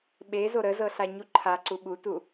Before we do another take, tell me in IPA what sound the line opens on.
ɓ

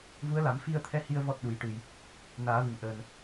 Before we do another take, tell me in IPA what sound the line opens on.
v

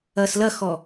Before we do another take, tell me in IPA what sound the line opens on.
ɐː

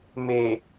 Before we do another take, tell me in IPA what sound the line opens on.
m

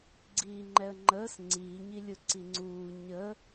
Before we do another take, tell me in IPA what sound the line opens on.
ɡ͡ǀ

